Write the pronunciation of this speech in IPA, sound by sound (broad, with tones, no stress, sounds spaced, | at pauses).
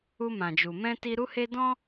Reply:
u˧ m ã˨ d͡ʒ u˨ m ɛ̃˧ t i˧ ɾ u˧ h e˧ d ɔ̃˦